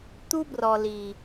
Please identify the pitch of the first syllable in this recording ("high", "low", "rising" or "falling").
high